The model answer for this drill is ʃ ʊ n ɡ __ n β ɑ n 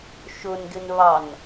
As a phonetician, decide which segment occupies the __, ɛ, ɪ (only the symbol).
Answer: ɪ